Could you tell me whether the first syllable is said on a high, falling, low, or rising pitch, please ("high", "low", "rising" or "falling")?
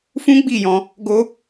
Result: high